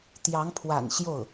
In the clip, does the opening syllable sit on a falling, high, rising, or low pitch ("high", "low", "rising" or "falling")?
rising